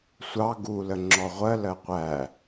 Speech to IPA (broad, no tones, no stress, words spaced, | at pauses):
sʷɑ ɡulə ŋ͡ǁɔʁʷɜ lɜqʷæ